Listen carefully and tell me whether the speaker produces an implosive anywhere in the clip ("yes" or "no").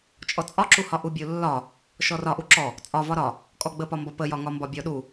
yes